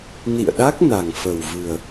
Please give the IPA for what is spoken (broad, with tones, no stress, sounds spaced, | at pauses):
n ḭ˧˨ ə̯ ɗ a˦˥ k̚ n a˨˩ ŋ f ə˨˩ w v ɨ˨˩ ə̯